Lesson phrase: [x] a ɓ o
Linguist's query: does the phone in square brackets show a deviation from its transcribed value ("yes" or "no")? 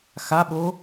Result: no